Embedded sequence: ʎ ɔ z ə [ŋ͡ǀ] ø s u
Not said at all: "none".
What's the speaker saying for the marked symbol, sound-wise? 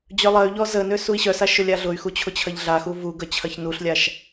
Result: n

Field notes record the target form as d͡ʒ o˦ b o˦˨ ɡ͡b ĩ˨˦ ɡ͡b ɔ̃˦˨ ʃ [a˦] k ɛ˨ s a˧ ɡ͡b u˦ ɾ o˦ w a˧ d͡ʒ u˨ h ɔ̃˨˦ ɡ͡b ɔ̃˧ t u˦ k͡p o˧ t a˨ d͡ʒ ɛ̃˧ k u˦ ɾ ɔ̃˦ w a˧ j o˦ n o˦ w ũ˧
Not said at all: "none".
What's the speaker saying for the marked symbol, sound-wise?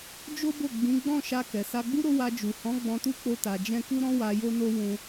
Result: a˧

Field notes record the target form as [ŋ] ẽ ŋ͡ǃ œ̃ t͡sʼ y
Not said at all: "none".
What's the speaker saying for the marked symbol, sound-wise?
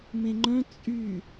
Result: m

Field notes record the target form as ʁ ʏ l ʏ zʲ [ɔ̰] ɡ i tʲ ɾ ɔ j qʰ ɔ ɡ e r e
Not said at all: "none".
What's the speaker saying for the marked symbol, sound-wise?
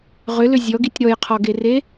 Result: ɔ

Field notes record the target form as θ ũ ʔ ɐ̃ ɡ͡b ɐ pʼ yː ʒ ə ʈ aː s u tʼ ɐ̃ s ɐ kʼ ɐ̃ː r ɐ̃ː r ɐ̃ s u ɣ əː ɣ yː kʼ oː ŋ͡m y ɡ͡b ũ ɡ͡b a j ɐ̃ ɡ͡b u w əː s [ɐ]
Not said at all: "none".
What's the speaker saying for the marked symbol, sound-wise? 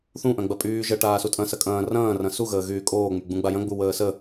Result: ə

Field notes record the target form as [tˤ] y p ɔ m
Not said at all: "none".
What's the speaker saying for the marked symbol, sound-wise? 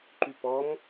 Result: ǃ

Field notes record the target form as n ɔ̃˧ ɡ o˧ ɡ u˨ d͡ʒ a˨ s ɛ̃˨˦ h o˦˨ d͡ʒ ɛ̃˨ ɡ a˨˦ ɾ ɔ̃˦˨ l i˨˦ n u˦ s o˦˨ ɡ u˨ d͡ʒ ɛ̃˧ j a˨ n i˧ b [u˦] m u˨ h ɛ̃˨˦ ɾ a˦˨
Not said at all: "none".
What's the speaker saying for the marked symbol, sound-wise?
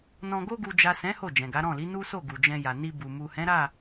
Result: u˨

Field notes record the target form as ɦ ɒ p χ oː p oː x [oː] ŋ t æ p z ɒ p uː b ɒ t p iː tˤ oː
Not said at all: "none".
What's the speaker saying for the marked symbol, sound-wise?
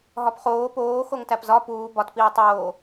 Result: o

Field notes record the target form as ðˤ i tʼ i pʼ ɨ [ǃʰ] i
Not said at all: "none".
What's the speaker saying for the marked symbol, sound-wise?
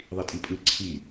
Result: ǀʰ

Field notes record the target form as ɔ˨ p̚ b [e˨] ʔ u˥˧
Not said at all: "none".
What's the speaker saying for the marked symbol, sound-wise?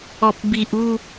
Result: i˨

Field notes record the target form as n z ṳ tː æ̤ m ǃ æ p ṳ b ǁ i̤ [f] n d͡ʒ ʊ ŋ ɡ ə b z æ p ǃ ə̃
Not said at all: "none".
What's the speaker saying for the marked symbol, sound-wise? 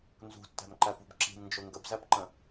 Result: m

